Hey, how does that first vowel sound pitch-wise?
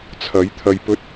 rising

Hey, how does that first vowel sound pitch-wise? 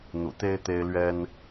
low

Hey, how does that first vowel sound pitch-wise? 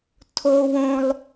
high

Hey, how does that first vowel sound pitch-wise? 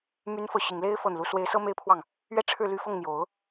rising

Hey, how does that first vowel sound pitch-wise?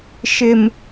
low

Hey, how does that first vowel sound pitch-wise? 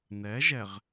rising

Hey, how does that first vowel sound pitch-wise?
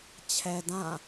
low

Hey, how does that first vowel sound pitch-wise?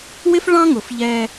high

